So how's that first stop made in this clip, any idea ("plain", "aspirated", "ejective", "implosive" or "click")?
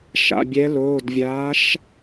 plain